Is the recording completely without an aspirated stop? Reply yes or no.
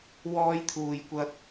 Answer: no